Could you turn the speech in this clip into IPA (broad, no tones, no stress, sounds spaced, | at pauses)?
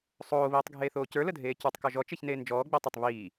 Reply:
sˤ oː β iː tˤ ɡʱ eː θ oː c ə˞ l ə dʱ eː c ə˞ tˤ k ɔ ʒ ɔ t͡ʃ e ç n eː n d͡ʒ ɔː ɡ͡b e tˤ ə tˤ β iː